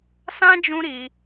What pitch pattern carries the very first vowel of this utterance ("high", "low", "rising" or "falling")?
high